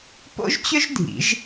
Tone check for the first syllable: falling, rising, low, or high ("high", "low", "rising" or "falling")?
high